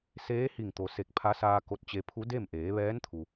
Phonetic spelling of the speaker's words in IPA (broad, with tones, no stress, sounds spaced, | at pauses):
s eː˧˥ h i˧˩ ŋ t̪ o˩ s e˧˩ k̚ pʰ a˧˥ s aː˧ k o˧ t̚ t͡ɕ e˧ pʰ u˧˥ d e˥˨ m ʔ eː˩˧ ʋ ɛː˧˥ n t̪ʰ u˩